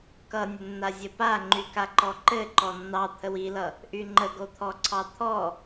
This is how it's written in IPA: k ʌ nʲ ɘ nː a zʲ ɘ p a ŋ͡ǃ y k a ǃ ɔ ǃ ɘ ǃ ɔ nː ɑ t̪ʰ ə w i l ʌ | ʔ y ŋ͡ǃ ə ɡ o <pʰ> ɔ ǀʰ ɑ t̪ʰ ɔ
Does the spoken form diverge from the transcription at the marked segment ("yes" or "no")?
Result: yes